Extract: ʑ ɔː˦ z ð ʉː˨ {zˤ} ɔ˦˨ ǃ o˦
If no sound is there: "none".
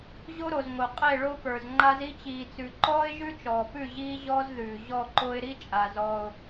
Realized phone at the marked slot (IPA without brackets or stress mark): ʑ